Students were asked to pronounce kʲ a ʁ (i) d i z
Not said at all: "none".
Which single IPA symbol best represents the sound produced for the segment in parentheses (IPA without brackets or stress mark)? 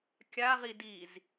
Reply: i